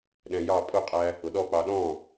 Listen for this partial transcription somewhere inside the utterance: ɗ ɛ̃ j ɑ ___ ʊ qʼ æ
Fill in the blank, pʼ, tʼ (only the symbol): pʼ